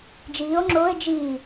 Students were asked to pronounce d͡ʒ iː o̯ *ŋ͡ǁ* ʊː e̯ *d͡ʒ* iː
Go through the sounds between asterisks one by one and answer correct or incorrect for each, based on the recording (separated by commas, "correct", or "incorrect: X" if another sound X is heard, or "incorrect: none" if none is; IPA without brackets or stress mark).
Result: correct, correct